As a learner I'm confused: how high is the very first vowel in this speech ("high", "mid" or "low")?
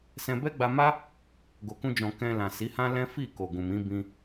mid